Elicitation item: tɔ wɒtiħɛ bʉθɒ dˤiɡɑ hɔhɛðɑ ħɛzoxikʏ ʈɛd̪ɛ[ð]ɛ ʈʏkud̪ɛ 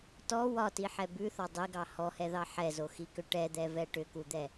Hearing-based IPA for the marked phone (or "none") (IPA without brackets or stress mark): v